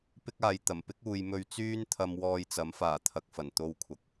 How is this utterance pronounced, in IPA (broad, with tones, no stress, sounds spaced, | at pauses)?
p ɪ˥ k̚ aː˨ j t̪ ɐ˨˩ m p ɪ˥ k̚ uː˨ j m ɵ˧ ɥ t͡s yː˥ n t̪ʰ ɐ˧ m w ɔː˧ j t͡s ɐ˨˥ m f aː˨˩ t̪ʰ ɐ˨ k̚ f ɐ˨˩ n t̪ o˧ w kʷʰ ɐ˨ k̚